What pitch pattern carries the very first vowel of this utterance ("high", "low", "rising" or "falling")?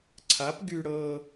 rising